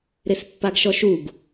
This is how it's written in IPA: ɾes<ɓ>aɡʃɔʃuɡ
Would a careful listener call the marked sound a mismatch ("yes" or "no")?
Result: yes